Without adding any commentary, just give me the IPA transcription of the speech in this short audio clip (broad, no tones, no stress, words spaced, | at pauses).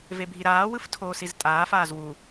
vebʱiɾaː wɯftʰoːsiztʼaː faːzwu